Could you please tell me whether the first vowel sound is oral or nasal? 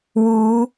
oral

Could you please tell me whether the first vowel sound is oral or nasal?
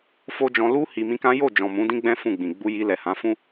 oral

